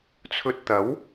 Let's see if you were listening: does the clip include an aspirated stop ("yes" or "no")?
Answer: yes